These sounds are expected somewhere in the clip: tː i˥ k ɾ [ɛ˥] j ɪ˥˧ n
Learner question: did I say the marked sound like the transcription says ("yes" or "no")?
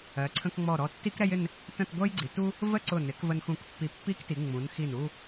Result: yes